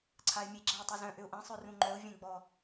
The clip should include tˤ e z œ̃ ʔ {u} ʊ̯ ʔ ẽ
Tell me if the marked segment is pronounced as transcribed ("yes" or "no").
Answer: no